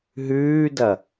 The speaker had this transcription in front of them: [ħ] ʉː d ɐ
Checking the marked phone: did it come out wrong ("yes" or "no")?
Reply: yes